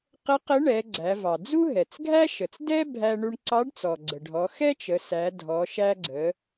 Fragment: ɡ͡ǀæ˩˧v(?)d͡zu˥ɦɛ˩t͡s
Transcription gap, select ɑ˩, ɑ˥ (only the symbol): ɑ˩